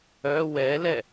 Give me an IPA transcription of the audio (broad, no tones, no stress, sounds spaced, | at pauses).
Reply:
œ w ɛ l ɛ